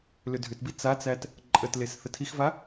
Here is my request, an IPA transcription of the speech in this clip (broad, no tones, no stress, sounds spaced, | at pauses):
l ʏ dʱ ʏ t b i t͡s a t͡s æ t | ǃʼ ə t l e s θ ə tʰ i x v a